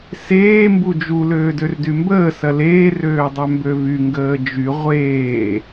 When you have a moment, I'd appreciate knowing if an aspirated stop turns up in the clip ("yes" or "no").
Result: no